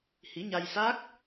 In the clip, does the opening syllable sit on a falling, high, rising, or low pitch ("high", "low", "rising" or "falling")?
rising